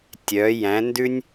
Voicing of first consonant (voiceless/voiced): voiceless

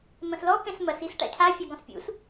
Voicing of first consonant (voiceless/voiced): voiced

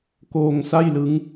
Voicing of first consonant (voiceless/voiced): voiceless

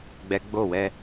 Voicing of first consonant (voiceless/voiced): voiced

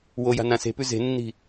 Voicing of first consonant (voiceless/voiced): voiced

